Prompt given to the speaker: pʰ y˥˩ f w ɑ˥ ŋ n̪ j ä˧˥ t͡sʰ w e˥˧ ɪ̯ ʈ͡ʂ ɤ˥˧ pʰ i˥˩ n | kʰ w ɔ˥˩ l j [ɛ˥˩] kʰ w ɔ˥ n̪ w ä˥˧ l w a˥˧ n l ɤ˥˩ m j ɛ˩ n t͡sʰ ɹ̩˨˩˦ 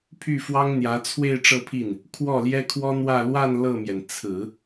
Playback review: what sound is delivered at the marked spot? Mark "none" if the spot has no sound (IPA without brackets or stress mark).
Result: ɛ˥